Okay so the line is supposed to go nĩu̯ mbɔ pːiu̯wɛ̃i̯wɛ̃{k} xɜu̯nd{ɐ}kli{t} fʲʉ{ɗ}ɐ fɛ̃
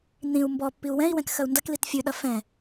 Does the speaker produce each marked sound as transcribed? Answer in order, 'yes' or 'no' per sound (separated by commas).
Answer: yes, yes, yes, yes